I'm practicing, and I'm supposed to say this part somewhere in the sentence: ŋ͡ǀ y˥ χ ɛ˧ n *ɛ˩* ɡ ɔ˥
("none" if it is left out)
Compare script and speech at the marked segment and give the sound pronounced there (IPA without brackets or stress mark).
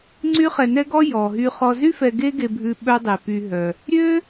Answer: ɛ˥